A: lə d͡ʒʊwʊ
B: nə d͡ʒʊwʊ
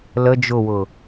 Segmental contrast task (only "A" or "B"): A